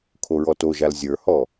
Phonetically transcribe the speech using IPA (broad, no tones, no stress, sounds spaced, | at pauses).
kʰ o ɹ ɔ t o ʒ a l zʲ ə˞ h ɔ